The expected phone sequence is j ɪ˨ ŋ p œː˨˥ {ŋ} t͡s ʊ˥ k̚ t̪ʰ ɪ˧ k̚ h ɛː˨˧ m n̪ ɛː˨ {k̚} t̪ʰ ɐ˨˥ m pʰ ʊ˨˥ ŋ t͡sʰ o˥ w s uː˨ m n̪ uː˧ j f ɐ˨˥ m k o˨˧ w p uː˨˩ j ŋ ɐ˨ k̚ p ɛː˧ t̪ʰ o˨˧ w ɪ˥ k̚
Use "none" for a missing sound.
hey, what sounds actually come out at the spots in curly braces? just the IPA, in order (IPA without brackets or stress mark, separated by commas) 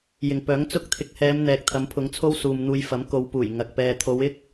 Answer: ŋ, k̚